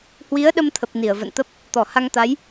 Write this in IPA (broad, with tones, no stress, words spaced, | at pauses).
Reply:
hwi˨˦ə̯ɗə˧mt̪ʰə˨˩p̚ ni˧˩ə̯və̰˧˨nt̪ə˦˥p̚ | t̪ɔ˧˩ha˧ŋt̪a˨˦j